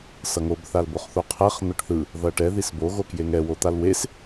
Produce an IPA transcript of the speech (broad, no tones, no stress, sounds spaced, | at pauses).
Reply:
s ʌ ŋ o b θ a l b o χ θ o qʰ ɛ χ n̪ ʌ ʈ θ ɯ | ð ʌ ʈ ɛ ð i s b o ɣ o k j e ŋ ɛ w o t̪ a l w e s